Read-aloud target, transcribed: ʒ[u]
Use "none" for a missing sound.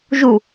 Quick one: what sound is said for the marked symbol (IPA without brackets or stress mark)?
u